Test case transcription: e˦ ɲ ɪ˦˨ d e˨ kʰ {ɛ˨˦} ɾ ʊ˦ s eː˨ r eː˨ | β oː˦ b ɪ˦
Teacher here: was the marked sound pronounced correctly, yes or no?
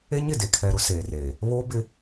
no